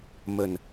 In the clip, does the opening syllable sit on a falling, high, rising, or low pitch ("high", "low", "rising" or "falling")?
low